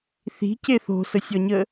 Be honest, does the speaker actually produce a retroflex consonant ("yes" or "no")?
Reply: no